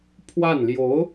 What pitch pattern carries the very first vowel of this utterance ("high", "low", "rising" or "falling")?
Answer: falling